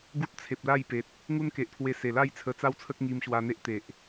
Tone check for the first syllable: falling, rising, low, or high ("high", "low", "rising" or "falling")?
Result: high